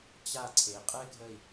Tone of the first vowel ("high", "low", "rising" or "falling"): falling